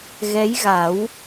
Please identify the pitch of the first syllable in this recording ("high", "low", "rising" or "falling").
rising